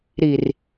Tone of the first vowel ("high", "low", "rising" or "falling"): low